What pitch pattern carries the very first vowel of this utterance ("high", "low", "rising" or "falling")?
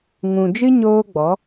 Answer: low